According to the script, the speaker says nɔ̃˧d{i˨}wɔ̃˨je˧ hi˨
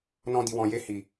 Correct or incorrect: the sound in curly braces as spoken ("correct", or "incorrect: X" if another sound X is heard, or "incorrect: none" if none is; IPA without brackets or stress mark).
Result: correct